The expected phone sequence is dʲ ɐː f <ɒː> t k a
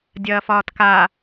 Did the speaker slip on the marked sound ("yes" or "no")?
no